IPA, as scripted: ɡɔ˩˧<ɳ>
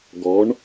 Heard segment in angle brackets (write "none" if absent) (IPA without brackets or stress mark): ɳ